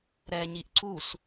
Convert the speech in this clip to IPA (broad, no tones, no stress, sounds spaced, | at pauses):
ɾ ɛ ɲ i ʔ ǀ u s